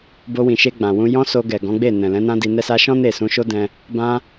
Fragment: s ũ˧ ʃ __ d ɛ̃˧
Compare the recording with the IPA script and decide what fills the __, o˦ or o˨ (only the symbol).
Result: o˦